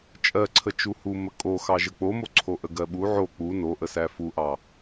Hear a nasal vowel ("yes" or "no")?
no